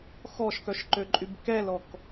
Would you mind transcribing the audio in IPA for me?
x ɔ ʃ k œ ʃ ǃ ø ǃʼ y b k ɛ l ɔ k

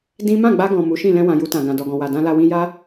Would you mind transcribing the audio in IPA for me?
d ĩ˦ m ã˦˨ ɡ͡b a˧ ɡ ɔ̃˨ m u˨˦ ʃ ĩ˦˨ l ɛ̃˧ w ã˨ j u˧ t ã˨ ɡ ã˨ d ɔ˨ ɡ ɔ̃˨ w a˨ d ã˧ l a˧ w ĩ˧ j a˦

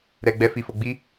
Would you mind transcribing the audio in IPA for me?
ɾ ɛ˨ ɡ͡b ɛ˧ f i˨ f o˨ ɡ͡b i˧

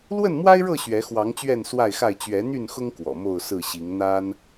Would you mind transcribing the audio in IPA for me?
l w ə˥˨ n m w a˦ ɪ̯ ɻ ɤ˥˨ ɕ ɥ ɛ˨˦ x w ɑ˨˦ ŋ t͡ɕ ɥ ɛ˥˨ n s w a˥˨ ɪ̯ x a˥˨ ɪ̯ t͡ɕ ɥ ɛ˨˦ n̪ y˥˨ n x ʊ˦ ŋ k w ɔ̰˨˩ m o˥˨ ʊ̯ s ɹ̩˥˨ ɕ i˨˦ ŋ n̪ a˦ n

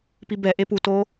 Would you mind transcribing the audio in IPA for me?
p i b ɛ ʔ e p u t o

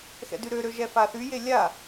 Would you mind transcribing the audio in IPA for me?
x ɛ̰ d y ɾ ø ɾ ø ʒ ɛ f a θ y j e lʲ a

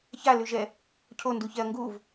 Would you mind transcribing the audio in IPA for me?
ç a l ʉ ʒ ɛ | cʰ o n d u ç ɛ ɐ̯ ŋ ɡ u v

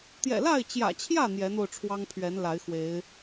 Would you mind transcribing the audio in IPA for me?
t̪ j ɛ̰˨˩ l a˥˨ ɪ̯ t͡ɕ j ä̰˨˩ t͡ɕʰ j ä˥˨ n̪ j ɛ˨˦ n̪ o˧ ʊ̯ ʈ͡ʂʰ w ɑ˦ ŋ pʰ ɥ ɛ˨˦ n l a˨˦ ɪ̯ x w e˨˦ ɪ̯

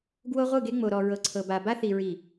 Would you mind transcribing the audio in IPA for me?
ɡ w o˦ ʁʷ ɯ˦˨ ɡ e˦ ŋ͡m o˨ ɾ ɔ˨ ɹ ɤ˨ ǀʰ ɤ˨ b a˨ b a˦ θ i˨ ɹ i˨

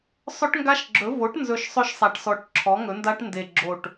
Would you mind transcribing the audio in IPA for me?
sˤ ɵ˦˥ ʈ ŋ ɡ a˦˥ ʃ ɡ͡ǁ ɵ˩˥ v o˩˥ ʈ n z ɵ˨˩ ʃ sˤ ɵ˦˥ ʃ sˤ a˨˩ ʈ s ɔ˨˩ ʈ ǁʰ ɔ˩˥ ŋ ɵ˩˥ n d a˦˥ ʈ n d e˨˩ ɡ͡ǁ o˨˩ ʈ

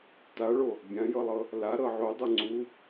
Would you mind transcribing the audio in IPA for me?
t a ɭ o | bʲ ã j ɤ lˠ ɤ | l a ɾ ɤ ʕ o dˤ ɤ ŋ͡ǀ u

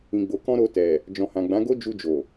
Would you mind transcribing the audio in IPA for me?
ĩ˨ ɡ͡b o˨ k ɔ̃˧ ɾ o˧ t ɛ˨ | d͡ʒ ɔ̃˨ h ã˨ ɡ͡b ã˨˦ ɡ o˦ d͡ʒ u˧ d͡ʒ o˨

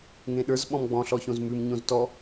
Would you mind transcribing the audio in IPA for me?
ŋ ẽ ɗ ə˞ z ɓ ɔ̃ m ɡ͡b ɔ̃ ɬ ɔ ç õ z m ʉ m ɲ õ z t ɔ

